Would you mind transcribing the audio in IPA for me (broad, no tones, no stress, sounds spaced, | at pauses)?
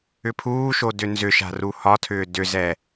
ʏ pʰ uː ʃ o d ʏ n z ʏ ʃ a̤ r u h ɒ tʰ ʏː d ʏ z ɛ